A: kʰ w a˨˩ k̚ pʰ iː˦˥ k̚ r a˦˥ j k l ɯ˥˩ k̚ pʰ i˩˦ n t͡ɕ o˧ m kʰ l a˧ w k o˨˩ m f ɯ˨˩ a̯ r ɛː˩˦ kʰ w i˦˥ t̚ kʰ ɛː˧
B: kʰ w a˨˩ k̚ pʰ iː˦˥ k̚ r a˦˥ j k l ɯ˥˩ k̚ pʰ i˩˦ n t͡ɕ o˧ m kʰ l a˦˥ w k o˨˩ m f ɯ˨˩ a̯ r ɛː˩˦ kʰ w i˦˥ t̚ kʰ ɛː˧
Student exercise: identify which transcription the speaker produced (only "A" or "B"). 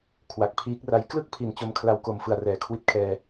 A